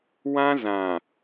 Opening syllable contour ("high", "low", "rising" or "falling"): high